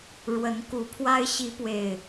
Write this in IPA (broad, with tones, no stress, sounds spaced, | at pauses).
ɻ w ə˨˦ n k u˨˩ pʰ w a˦ ɪ̯ ɕ i˨˦ p w e˨˩ ɪ̯